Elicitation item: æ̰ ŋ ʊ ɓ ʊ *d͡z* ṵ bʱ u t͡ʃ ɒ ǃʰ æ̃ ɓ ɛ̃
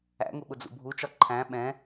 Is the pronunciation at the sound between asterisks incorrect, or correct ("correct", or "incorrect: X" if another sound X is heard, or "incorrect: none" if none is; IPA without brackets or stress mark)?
correct